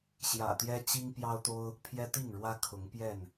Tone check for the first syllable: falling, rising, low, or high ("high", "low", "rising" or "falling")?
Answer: low